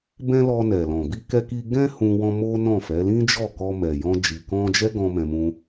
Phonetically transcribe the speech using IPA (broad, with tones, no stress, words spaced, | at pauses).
bɛ̃˦lɔ˧ nɛ˨lɔ̃˨ bi˧kɛ˧ki˧ ɡɛ̃˦ hũ˧ wɔ̃˧mo˦ nɔ̃˦˨fɛ˨˦ lĩ˦d͡ʒɔ˦˨kɔ˧ mɛ˨jɔ̃˧ d͡ʒi˨kɔ̃˧d͡ʒɛ˦ ɡɔ̃˦mɛ̃˧mũ˦